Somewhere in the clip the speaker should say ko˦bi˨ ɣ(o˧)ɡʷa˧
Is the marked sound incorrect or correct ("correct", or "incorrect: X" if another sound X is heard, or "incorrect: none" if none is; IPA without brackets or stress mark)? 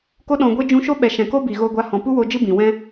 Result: correct